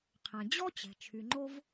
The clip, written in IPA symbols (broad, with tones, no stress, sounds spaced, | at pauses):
qʰ ɛ̃˩ d͡ʑ ɔ˦ t͡ɕ ɛ̤˩ t͡ʃʰ y˩ ŋ͡ǃ o˦ v